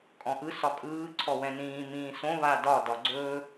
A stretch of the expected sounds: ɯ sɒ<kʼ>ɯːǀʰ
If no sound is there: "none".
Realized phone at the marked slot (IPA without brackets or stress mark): kʼ